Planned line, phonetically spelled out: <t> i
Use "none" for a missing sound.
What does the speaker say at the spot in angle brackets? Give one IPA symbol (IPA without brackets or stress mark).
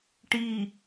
ʈ